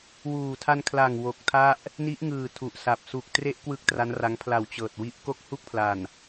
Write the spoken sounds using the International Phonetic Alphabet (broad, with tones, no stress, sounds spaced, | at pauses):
w uː˨˩ tʰ a˧ n kʰ l a˨˩ ŋ w o˨˩ k̚ tʰ a˥˩ ʔ | n i˦˥ ʔ ŋ ɯː˨˩ tʰ u˨˩ ʔ s a˨˩ p̚ s u˨˩ k̚ t r e˦˥ ʔ k w ɯ˥˩ k̚ t r a˦˥ n r a˦˥ ŋ pʰ l a˨˩ w t͡ɕ ɤː˨˩ t̚ w i˦˥ ʔ k o˦˥ k̚ h u˦˥ k̚ pʰ l a˨˩ n